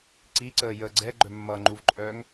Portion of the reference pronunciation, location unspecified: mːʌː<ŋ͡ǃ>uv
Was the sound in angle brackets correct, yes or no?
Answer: yes